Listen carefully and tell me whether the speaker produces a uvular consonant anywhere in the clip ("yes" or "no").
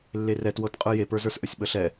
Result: yes